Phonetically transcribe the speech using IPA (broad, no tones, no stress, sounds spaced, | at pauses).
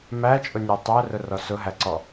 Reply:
m æ t͡ʃʼ ʊ nʲ æ tˤ æ r ʊ r ɔ s ʊ ɦ æ ǀ ɔ